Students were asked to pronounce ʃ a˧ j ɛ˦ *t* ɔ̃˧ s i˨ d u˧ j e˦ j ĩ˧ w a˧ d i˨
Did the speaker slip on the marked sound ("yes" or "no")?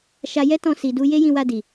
no